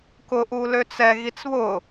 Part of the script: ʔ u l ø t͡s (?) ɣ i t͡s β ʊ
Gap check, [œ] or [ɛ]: ɛ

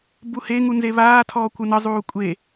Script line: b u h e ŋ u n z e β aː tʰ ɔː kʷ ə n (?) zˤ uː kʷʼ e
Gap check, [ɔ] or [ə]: ə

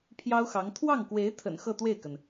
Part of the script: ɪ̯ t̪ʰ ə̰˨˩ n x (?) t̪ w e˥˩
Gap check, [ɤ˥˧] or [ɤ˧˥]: ɤ˥˧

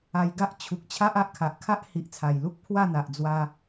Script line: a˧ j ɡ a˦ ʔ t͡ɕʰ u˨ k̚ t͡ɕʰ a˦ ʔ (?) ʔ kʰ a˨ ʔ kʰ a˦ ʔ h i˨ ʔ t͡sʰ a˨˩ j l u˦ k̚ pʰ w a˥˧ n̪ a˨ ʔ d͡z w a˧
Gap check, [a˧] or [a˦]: a˦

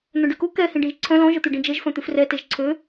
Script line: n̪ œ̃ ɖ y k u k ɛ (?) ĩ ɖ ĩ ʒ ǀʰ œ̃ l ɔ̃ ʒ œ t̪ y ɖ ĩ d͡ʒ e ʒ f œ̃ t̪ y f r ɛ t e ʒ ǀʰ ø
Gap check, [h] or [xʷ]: h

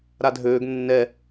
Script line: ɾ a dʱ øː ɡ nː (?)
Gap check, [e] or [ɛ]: ɛ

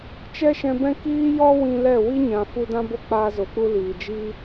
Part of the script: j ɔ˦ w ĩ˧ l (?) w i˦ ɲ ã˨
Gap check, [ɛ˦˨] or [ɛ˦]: ɛ˦˨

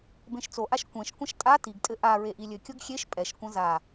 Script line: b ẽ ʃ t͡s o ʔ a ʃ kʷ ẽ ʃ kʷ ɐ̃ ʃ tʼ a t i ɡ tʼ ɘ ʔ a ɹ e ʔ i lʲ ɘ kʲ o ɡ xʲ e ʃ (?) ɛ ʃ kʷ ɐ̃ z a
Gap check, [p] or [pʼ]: pʼ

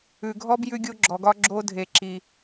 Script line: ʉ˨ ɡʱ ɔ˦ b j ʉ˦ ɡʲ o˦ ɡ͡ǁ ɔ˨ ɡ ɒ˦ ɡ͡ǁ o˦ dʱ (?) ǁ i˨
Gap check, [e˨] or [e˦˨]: e˨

